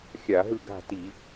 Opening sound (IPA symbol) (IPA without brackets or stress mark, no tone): xʲ